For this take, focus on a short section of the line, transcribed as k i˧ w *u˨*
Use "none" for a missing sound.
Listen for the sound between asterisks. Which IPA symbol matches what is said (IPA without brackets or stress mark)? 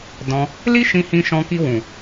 ũ˨